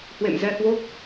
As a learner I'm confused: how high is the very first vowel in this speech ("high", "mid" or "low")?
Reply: mid